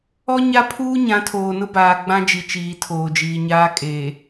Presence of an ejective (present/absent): present